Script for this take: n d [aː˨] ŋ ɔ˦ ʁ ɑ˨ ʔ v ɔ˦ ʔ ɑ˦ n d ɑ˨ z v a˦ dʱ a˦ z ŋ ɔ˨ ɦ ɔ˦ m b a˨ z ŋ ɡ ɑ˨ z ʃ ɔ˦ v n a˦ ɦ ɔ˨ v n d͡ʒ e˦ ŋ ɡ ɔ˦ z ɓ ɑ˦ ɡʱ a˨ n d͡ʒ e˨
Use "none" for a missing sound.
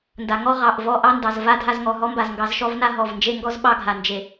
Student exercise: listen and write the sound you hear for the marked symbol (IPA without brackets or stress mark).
a˨